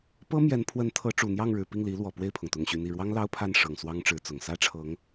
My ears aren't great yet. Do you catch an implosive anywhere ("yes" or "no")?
no